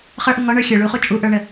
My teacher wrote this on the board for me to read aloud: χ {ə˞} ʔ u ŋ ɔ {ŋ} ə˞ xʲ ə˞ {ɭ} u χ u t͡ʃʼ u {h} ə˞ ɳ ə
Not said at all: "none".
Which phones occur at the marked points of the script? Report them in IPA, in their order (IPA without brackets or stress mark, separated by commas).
ə˞, ɳ, ɭ, ʔ